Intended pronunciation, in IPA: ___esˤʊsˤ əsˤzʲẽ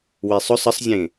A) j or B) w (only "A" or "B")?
B